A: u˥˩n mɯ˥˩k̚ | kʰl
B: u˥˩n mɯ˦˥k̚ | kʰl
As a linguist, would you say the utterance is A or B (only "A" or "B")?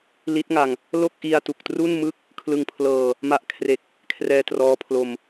A